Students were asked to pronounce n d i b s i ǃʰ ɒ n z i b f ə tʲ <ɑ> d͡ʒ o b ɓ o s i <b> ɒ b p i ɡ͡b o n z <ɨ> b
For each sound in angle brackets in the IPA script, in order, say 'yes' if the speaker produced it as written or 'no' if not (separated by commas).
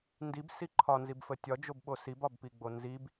no, yes, no